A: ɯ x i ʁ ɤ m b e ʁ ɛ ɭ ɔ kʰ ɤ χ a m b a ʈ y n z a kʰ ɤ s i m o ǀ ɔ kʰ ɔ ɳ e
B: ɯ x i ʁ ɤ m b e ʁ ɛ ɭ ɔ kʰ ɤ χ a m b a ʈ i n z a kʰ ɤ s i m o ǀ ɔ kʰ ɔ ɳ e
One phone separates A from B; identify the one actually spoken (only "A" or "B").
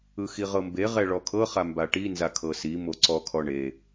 B